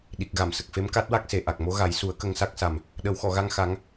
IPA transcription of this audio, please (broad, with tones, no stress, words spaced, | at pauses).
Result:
ɗi˨˩k̚ɣa˨˩˨msə˨˩k̚fe˧˥m ka˦˥t̚wa˦˥k̚se˨˩ ʔa˨˩k̚mo˧˥ɣa˨˩˦jsu˨˩˦ə̯ kə˧ŋsa˦˥k̚sa˨˩m | ɗə˨˩˦wxɔ˨˩˨ɣa˧ŋ xa˧˥ŋ